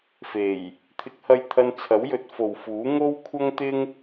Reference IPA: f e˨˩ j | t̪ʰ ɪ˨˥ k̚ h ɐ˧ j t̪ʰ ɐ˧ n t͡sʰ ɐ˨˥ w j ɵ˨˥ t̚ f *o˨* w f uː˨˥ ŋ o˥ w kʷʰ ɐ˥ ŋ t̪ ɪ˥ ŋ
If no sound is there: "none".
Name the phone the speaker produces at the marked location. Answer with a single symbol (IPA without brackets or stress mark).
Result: o˨